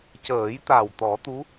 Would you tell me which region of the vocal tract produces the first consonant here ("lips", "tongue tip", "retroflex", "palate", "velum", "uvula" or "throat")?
palate